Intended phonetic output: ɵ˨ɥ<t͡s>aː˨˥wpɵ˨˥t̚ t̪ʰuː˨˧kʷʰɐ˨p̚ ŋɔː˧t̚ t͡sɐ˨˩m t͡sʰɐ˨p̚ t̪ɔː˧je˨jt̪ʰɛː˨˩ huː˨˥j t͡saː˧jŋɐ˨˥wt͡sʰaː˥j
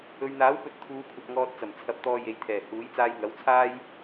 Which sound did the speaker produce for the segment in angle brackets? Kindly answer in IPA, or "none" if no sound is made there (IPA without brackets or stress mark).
n̪